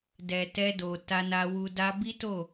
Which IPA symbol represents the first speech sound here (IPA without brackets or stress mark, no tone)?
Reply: d